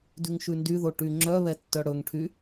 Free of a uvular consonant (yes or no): yes